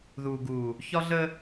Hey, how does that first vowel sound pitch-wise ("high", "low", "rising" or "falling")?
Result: low